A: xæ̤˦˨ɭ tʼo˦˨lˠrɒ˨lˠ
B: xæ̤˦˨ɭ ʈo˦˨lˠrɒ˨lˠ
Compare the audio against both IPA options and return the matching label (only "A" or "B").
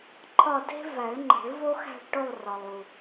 B